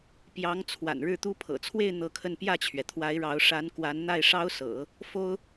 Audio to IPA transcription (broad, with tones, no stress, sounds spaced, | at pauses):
p j ɑ˧˥ ŋ t͡sʰ w a̰˨˩ n ɻ ɻ̩˥˩ t̪ u˥ pʰ ɤ̰˨˩ t͡sʰ w e˥˧ ɪ̯ n̪ ɤ˥˧ kʰ ə˥˧ n p j ä˥˩ t͡ɕʰ ɥ ɛ˩ t̪ʰ w a˧˥ ɪ̯ ɻ ɑ˧˥ ʊ̯ ʂ a˧˥ n k w a˧˥ n n̪ a˥˩ ɪ̯ ʂ ɑ˥ ʊ̯ s ɤ̰˨˩˦ | f o˥ ʊ̯